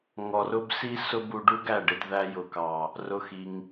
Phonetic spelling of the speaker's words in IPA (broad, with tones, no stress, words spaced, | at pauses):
ŋɔ˨rʊ˦bsi˦sʊ˦ bu˧ɖu˦ɡæ˦˨ɖɪ˧d ðæ˧jʊ˨kɑ˨ | rʊ˦xi˧ŋ